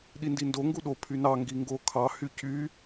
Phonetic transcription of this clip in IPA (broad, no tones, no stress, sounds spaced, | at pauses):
ɗ i n d i n d o ŋ ɡ u ɗ o pʰ y n ɑ ŋ ɡ i ŋ ɡ o kʰ ɑ h y c y